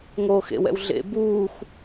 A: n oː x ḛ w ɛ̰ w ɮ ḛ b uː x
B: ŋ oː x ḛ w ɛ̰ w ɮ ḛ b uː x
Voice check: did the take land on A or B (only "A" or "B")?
B